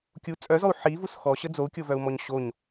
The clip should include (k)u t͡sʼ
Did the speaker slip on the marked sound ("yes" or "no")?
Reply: yes